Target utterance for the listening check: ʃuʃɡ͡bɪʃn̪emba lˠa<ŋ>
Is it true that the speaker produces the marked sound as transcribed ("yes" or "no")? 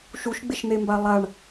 no